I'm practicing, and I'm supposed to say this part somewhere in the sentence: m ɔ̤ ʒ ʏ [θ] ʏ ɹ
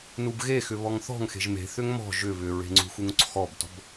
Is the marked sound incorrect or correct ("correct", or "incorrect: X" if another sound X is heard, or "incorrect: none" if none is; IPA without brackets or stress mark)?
incorrect: β